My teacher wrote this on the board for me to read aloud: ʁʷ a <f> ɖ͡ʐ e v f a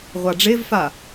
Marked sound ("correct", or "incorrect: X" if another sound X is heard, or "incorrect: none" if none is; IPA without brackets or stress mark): incorrect: none